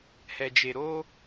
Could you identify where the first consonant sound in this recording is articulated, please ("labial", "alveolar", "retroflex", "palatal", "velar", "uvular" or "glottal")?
glottal